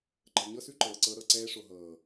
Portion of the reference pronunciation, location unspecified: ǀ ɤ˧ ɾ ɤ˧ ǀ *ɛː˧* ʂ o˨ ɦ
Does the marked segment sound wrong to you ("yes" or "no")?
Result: no